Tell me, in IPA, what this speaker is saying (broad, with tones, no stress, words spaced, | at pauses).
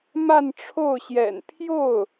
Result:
ma˥˧nʈ͡ʂʰo˥˩ʊ̯ɕjɛ̰˨˩n pʰjo˥˩ʊ̯